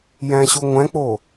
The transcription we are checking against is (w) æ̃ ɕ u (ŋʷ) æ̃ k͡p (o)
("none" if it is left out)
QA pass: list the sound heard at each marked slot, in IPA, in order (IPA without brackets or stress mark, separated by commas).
j, ŋʷ, o